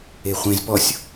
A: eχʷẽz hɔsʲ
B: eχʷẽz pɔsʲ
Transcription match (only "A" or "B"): B